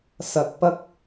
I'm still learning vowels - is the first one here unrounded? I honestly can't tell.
yes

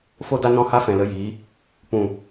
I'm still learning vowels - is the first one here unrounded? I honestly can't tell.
no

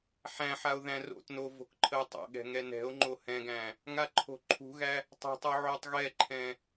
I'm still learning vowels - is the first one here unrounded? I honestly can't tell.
yes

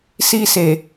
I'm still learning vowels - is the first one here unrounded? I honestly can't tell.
yes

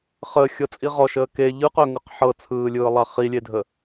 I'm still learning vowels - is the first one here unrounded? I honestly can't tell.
yes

